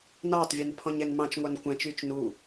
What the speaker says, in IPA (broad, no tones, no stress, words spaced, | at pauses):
nɑːtˤvʲʉn pʰɔ̃ɲɛnmɑ̃t͡ʃŋʷɑn kʷæ̃t͡ʃyːt͡ʃ nu